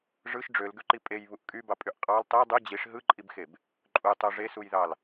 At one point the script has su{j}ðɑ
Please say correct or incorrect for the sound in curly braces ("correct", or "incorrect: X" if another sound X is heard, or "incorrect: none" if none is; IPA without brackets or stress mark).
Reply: correct